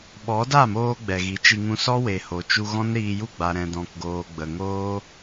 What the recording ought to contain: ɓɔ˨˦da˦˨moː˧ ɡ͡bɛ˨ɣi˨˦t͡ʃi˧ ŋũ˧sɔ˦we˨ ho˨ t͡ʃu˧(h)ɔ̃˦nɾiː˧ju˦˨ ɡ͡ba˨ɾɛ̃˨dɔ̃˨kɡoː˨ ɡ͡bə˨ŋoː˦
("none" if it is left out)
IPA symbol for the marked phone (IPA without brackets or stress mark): ɣ